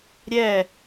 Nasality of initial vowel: oral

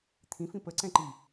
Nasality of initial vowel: nasal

